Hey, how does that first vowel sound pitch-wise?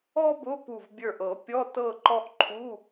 high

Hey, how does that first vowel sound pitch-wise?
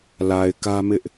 low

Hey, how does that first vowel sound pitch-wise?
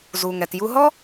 low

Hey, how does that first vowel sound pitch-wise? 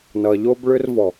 low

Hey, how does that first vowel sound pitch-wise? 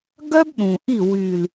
high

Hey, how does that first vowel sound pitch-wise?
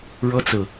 high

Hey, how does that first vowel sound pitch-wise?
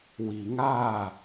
low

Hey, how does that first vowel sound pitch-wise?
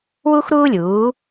high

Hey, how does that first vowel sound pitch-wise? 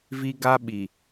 high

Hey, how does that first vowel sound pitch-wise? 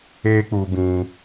high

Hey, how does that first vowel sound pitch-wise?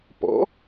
rising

